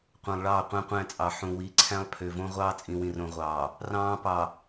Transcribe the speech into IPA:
qʷ ɑ̃˨ lˠ ɭ ɑː˦˨ qʷ æ̃˦ qʷ æ̃˦˨ t͡sʼ ɑ˨ ħ ũ˨ w i˨˦ ǀʰ æ̃˦ lˠ pʰ ø˨ v õ˦ ʁʷ ɑː˦ t͡sʼ ĩ˨ w ĩ˨ r õ˨ ʁʷ ɑː˨ | r ɑ̃ː˦ p ɑ˨

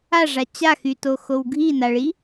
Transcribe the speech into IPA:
a ʐ a t͡ɕ a x y t o x o w ɡʱ i n a ɭ i

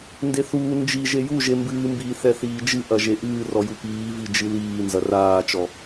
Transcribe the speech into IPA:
n d e θ uː n d͡ʒ i ʒ e j u ʒ e m b ɨː m b iː θ ɛ θ iː d͡ʒ ɨ ʔ ɐ ʒ e ʔ ɨː r ɔ j u p iː v i d͡ʒ ɨ l iː n z ɐ r aː t͡ʃ ɔ

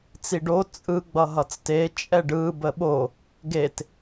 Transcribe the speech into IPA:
t͡s i ɖ o t͡sʼ ɯ ɡ͡b ʌ ɦ ʌ t͡s t e t͡ʃʼ ɛ ɖ ɯ b ə ɓ o | ɡ e t

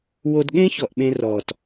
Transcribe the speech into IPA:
w o˧ d ɠ ẽ˦ ç ɔ˨ ʔ ɓ ẽ˧ r ɔː˨ t

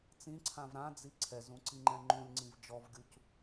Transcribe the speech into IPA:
t͡s ĩ ǀʰ ã v ɾ ã d͡z i ǀʰ ɛ z ũ ǀ i ŋ͡ǃ ɛ̃ ŋ͡ǃ ũ lʲ ŋ͡ǀ ĩ v d͡ʒ ɔ v ɡʲ u c

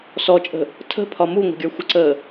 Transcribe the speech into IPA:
s ɔ t͡ʃʼ ə̤ | tʰ ə̤ pʰ ɒ m u ŋʷ ə̤ ɡʲ ə˞ xʷ ə ǀ əː

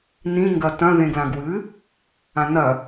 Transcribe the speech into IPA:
n ĩ ŋ ɡ ɐ t ɐ̃ ð ẽ ɡ l ã ɡ w ɨ | ã n ɐ

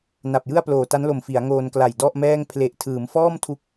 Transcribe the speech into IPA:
n a˨˩ p̚ j ɯ˥˩ a̯ p l oː˨˩ t a˦˥ n l o˨˩ m f i˩˦ a̯ ŋ oː˧ n k l a˨˩ j d ɔ˥˩ ʔ m ɛː˥˩ ŋ pʰ l e˨˩ ʔ tʰ ɯː˩˦ m f ɔː˥˩ m tʰ u˦˥ k̚

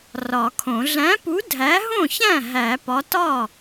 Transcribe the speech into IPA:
r ɒ˨˩˦ kʰ õ˨˩˦ ɮ æ̃˨˥ p u˨˥ dʱ æ˨˥ ɦ õ˥˩ ç æ̃˥˩ ɦ æ˨˩˦ p ɒ˨˥ t ɒ˥˩

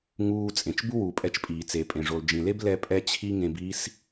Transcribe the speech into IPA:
ŋ uː˧ t͡sʼ ẽ˨ t͡ʃ b u˦ w uː˨ pʼ ɛ˧ t͡ʃ pʼ iː˨ t͡s e˨ pʼ ẽ˨ ʐ o˨ l d͡ʒ ĩ˨ l e˦ b l ɛ˧ pʼ ɛ˧ t͡ɕʰ i˦ ŋ ẽ˧ b i˦ s

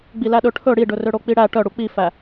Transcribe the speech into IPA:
ɡ͡b i l æ ɗ ɵ ʈʰ ɵ ɽ i ɖ ɵ r ø ɽ o k͡p i ɽ æ ʈ œ ɽ u k͡p i f æ

